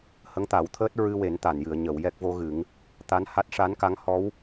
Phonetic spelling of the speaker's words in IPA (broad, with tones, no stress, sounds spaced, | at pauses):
h ə˧˥ ŋ t̪ a˨˩˦ w t̪ʰ əː˦˥ t̚ ɹ ɨ˧ w e˨˩˦ n t̪ a˨˩˨ n j ɨ˨˩˨ ə̯ ɲ ə˨˩˨ w j ɛ˦˥ k̚ v o˧˥ ɣ ɨ˨˩˦ ŋ | t̪ a˧˥ n h a˦˥ t̚ ʂ a˧˥ n k a˧˥ ŋ h ɔ˧˥ w